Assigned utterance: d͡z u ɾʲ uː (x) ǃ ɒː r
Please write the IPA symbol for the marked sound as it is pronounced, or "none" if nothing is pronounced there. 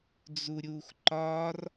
x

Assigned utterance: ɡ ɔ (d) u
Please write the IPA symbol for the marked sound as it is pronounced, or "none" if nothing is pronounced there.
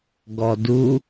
d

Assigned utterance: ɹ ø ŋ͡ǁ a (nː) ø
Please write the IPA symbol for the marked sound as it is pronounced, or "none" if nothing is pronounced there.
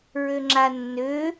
nː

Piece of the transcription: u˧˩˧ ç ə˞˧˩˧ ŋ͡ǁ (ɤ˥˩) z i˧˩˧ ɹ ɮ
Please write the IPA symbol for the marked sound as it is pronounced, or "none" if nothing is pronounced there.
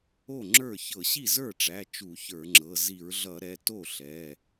ɤ˩˧˩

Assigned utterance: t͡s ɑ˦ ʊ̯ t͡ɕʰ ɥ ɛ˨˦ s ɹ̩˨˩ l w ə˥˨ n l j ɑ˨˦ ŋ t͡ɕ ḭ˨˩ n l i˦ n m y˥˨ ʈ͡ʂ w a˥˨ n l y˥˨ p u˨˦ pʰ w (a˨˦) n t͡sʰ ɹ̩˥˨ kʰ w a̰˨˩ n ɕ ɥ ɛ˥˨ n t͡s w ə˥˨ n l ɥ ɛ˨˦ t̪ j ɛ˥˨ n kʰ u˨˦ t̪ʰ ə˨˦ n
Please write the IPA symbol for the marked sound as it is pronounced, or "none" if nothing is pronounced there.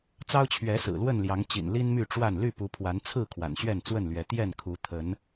a˨˦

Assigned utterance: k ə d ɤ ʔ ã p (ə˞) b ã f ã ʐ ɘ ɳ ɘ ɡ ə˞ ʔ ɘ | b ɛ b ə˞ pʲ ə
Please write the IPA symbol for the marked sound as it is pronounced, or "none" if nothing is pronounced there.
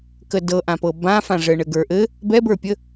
ɤ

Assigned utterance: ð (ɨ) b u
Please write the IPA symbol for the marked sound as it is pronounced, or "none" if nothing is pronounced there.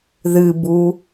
ɨ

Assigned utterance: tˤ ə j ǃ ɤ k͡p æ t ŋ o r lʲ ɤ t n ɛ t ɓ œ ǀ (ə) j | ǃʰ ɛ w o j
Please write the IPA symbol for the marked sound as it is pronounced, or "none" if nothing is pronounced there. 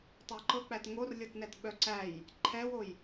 æ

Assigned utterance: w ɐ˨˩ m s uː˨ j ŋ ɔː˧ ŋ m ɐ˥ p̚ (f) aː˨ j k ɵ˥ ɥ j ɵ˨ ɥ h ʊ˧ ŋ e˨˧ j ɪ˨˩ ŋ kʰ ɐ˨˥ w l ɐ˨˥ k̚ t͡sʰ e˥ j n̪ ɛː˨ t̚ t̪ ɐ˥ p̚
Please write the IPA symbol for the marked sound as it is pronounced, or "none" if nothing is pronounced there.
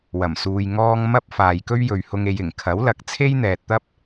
f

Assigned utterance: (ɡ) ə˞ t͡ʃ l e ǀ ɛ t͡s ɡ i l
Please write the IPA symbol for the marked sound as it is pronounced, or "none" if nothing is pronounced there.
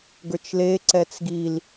ɡ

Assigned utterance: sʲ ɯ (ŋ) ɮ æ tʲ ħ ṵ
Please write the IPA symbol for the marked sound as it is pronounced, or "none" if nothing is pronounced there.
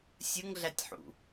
ŋ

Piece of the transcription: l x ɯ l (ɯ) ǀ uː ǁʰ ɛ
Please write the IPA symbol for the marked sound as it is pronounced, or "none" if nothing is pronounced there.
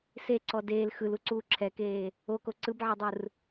u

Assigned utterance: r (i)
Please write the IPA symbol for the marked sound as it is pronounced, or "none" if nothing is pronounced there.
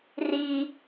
i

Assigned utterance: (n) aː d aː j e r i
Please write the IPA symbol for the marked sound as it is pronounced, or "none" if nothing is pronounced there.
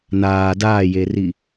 n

